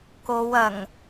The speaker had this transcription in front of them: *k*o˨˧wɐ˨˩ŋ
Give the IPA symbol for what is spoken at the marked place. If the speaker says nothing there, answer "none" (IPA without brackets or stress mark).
k